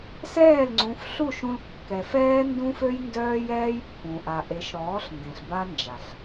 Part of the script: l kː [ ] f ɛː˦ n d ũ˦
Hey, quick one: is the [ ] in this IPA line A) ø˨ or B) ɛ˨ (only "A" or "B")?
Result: B